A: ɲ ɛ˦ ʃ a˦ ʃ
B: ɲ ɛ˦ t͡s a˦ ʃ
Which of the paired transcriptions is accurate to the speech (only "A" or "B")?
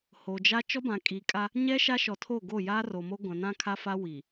A